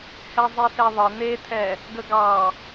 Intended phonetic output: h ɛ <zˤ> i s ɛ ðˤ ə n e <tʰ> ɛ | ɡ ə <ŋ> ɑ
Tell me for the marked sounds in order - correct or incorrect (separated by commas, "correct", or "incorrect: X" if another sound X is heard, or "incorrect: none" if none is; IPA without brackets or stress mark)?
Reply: correct, correct, incorrect: ɡ